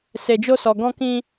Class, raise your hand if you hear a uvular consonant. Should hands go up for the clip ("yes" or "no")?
no